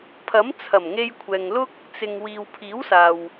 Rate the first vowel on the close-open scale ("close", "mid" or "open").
open